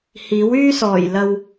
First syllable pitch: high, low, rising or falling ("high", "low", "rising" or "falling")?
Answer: rising